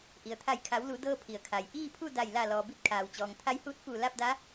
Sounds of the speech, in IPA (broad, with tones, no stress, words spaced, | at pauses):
ʔi˩ə̯t̪ʰa˧˩jkʰa˩˧w lu˩˧dɤː˧ pʰi˩ə̯kʰa˩j ʔiː˥˨pʰu˥˨ da˧˩j la˧˩lɔː˩ bi˧˥t̚kʰaː˩wt͡ɕɔː˩ŋ t̪ʰa˧jhuː˧˥t̚fuː˧˩ la˥˨p̚da˧˥